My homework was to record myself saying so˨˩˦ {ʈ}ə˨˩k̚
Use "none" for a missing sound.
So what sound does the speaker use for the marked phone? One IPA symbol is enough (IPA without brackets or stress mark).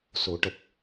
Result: ʈ